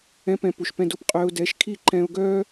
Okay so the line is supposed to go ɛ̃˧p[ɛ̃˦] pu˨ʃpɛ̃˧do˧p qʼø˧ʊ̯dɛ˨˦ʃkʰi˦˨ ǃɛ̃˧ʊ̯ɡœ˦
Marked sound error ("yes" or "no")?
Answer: yes